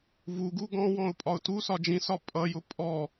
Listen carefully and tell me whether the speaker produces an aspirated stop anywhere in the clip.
no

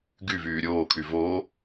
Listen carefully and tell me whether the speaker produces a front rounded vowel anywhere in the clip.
yes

